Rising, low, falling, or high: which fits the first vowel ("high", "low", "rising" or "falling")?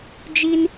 high